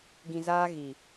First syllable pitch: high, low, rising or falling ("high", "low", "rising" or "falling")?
low